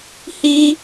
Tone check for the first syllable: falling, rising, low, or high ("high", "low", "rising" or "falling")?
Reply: high